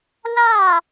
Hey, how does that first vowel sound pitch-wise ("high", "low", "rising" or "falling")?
falling